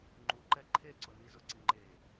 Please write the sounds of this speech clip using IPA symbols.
ŋ͡ǃ u ǃ ɛ ǃʰ e ǀ ʊ n i z ʊ ǀ i ŋ͡ǃ e

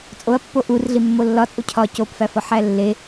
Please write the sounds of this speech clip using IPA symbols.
t͡sʼ o ɐ̯ pː o ʔ u r ɮ i mː o lː ɒ t͡sʼ u cʰ ɒ c o p f æ f ɒ ħ æ lː e

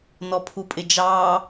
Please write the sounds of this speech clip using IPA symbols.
n ɔ pʰ u pʼ ɪ d͡ʒ ɑː

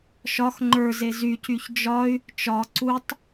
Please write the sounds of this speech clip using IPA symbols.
ʃ ɒ x ŋ͡ǃ ə˞ z e z y c y ç d͡ʒ ɒ y̯ | t͡ʃ ɒ ǀ u tˤ

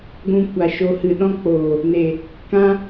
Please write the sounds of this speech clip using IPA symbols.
ɡʷ ũ˧ kʷ a˨ ʃ o˧ h ɨ˨ ɗ ɔ̃˦ k͡p oː˨ | n e˨ | k ã˦

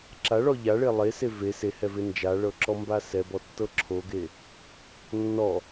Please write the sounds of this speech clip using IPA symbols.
ǁ a ɭ ɔ ʎ a ɭ e lˠ e s e v e s e h ɛ v e n d͡ʒ a ɭ ɤ ǁ ɔ m b a s ɛ b ɔ tː ɤ ǁʰ o ɡ e | nː ɔ

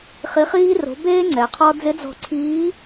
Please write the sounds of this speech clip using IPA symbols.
χ i˩˧ χ iː˧ r o̤˩˧ b eː˧ ŋ͡ǀ ɛ˩ qʰ ɔ˧ d͡z ɪ˧˥ d͡z ɔ̤˧ ǀʰ iː˧˥

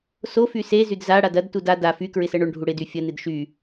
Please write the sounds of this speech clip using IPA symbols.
s o f y s e z y d z a ɽ a d ɐ d t u d a d a f y k ɹ ɪ s ɜ ɳ o ɳ ɖʱ u ɽ ɪ d y fʲ ɐ n ɪ d ʃ y

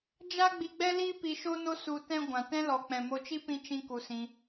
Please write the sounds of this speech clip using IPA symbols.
d͡ʒ a˦ ɡ͡b i˧ ɡ͡b ɛ˦ l i˦ p i˧ ʃ o˦ n o˦ s u˧ t ɛ̃˦ ɡʷ ã˨ t ɛ̃˦ l ɔ˨ k͡p ɛ̃˨ m o˧ t͡ʃ i˦ p ĩ˦ t͡ʃ ĩ˦ k u˧ s ĩ˧

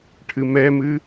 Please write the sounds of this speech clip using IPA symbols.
ʈʰ ɨ m ɛ m ɨ

